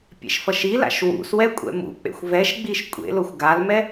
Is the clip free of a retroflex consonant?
yes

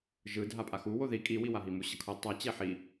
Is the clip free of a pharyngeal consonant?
no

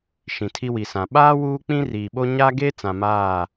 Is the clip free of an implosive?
no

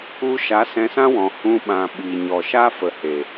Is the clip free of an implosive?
no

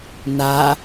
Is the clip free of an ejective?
yes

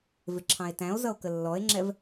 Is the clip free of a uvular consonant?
yes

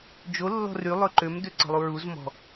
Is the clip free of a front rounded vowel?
no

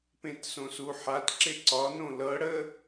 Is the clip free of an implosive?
yes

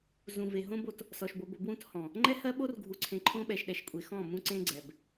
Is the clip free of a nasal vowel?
no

